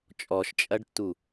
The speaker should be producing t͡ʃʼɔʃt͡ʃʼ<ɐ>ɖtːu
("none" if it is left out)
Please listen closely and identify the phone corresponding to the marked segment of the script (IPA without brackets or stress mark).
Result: ɐ